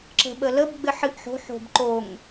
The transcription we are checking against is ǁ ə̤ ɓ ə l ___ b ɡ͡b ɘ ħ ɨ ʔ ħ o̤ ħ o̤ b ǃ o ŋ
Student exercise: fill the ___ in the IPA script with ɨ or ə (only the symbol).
ə